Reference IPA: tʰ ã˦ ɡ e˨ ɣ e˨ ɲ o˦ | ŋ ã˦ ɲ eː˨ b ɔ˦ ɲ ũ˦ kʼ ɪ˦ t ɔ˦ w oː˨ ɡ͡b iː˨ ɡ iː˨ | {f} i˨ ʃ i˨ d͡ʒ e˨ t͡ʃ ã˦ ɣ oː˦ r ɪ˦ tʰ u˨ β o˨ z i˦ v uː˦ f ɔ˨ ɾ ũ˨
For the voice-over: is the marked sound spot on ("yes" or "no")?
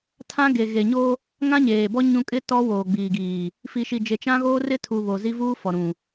yes